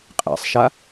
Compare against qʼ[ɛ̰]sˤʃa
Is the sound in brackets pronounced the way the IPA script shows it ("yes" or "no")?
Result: yes